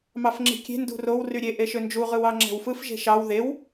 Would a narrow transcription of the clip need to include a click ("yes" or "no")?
yes